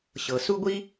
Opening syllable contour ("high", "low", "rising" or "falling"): low